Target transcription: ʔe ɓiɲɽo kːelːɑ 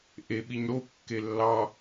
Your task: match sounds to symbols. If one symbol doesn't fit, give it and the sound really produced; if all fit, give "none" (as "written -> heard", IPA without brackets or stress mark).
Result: none